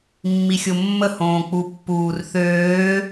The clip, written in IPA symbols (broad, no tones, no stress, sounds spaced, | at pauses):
mː i xʲ o mː ə h õː k͡p u pː uː r θ øː